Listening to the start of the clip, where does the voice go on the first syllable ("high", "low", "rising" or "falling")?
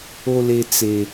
high